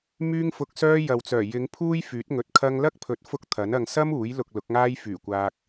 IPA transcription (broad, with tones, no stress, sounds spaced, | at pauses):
m yː˥ ŋ f ʊ˧ k̚ s œː˥ j ɐ˨ w t͡s œː˨˩ j ɪ˨˧ ŋ pʰ uː˥ j f yː˨˥ t̚ ŋ ɵ˨˥ t̚ kʰ ɐ˧ ŋ l ɐ˥ k̚ pʰ ɵ˨˥ t̚ f ʊ˥ k̚ t̪ʰ ɐ˨˥ n ɐ˧ ŋ s ɐ˥ m uː˨˥ j l ʊ˨ k̚ l ʊ˨˥ k̚ ŋ aː˥ j f yː˨˩ kʷ aː˧ k̚